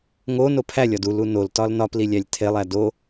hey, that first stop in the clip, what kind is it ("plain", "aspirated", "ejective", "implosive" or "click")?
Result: aspirated